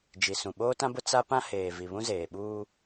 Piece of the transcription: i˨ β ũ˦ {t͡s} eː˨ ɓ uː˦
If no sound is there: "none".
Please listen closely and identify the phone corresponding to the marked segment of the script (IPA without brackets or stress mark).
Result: z